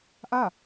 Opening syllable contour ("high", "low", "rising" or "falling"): falling